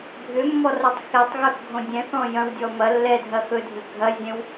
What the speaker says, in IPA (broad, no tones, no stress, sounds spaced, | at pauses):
bʱ ʏ mː ɔ r ʌ tˤ x ɛ tˤ ɣ ɵ x ɡʱ õ dʲ ɛ̃ θ ɔ̃ j ɐ̃ w dʲ ɔ m ɐ lː ɛ dʱ ɐ x ɵ dʱ ʏ ɡʱ ɐ zʲ ɛ̃ w